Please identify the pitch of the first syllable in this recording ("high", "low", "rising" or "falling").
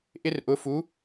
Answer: high